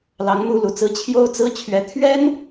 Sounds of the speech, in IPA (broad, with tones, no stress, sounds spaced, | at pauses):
l ɑ˧˥ ŋ m u˥ l u˨˩ t͡s ɹ̩˥ t͡ɕʰ j o˥ ʊ̯ t͡s ɹ̩˥ t͡ɕʰ ɥ ɛ˧˥ t̪ʰ ɥ ɛ˥ n